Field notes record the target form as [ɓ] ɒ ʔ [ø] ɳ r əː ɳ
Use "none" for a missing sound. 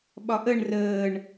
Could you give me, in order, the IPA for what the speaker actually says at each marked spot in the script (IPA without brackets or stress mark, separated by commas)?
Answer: ɓ, ə